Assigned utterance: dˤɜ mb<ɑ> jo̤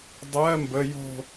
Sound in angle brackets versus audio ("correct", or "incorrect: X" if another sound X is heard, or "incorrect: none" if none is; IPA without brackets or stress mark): incorrect: ə